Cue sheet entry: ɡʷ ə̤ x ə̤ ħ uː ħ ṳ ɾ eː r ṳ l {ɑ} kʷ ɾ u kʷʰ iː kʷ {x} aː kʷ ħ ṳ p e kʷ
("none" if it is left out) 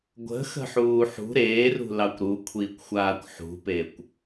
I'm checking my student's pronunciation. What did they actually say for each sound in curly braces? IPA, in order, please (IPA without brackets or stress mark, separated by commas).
ɑ, xʷ